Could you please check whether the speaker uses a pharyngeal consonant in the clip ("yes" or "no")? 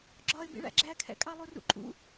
no